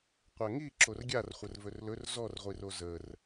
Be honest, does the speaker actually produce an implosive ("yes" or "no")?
no